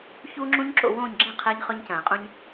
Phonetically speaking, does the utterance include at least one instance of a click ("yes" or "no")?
yes